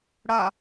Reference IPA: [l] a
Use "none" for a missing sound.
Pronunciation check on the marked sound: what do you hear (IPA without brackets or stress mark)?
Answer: ɽ